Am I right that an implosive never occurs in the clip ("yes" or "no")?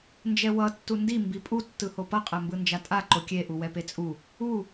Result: yes